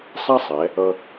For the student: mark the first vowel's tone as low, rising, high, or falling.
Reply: high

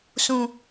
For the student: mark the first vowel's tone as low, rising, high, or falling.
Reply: low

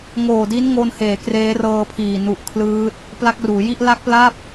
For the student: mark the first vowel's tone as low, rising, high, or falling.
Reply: low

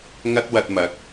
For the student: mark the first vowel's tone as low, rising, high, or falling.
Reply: high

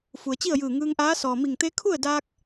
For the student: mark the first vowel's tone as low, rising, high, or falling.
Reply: low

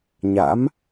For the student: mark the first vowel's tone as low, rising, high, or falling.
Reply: rising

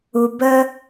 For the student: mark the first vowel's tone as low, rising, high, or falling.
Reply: low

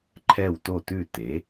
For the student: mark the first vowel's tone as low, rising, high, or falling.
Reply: falling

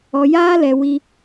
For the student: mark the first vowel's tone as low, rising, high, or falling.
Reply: low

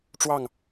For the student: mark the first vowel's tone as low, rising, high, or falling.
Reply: falling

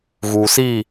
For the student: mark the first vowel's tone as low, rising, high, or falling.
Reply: low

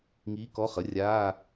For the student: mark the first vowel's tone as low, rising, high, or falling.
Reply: rising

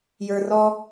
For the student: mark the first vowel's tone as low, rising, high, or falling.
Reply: low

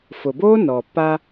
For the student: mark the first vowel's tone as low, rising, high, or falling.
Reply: low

